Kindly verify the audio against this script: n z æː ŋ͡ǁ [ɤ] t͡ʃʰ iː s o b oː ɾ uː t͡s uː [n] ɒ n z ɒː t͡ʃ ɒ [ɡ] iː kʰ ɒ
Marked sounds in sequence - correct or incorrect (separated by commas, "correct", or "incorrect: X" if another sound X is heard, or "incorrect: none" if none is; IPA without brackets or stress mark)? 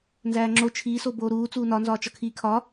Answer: incorrect: o, correct, incorrect: kʰ